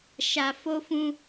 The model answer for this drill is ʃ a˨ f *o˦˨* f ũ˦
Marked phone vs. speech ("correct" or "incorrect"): incorrect